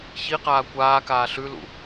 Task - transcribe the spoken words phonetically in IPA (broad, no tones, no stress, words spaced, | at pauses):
çiqaː kʷaːkaː ɬʉlṵ